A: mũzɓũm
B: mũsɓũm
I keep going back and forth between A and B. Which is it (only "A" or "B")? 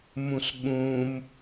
B